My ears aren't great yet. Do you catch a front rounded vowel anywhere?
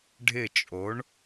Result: no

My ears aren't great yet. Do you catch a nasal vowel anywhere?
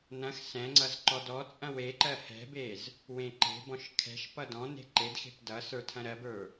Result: yes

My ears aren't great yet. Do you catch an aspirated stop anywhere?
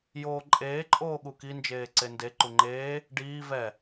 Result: no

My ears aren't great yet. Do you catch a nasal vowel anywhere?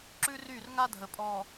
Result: no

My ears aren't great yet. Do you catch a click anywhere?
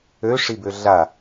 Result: no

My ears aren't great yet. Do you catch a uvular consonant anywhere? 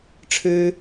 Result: no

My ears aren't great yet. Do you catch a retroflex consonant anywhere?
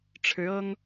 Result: yes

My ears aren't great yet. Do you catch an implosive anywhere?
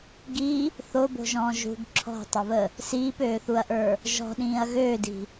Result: yes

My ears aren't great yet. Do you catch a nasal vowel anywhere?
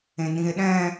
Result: yes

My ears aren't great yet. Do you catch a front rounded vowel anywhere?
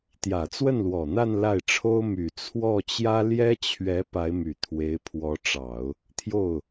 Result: yes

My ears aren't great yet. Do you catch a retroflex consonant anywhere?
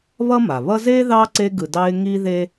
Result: no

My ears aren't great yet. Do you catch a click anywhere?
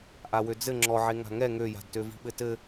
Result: yes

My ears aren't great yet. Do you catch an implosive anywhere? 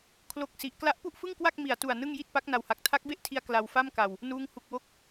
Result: no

